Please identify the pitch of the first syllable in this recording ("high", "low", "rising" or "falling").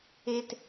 high